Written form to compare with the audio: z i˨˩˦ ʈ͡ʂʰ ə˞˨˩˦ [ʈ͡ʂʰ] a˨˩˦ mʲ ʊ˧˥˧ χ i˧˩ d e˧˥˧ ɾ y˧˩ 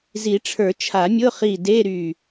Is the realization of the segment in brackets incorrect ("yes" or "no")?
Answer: yes